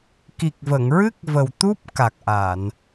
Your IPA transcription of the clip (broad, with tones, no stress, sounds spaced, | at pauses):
k i˨˩ k̚ v ə˨˩˨ ŋ ɹ ɨ˦˥ k̚ v ə˨˩ w t̪ u˦˥ p̚ k a˨˩ k̚ ʔ a˨˩˨ n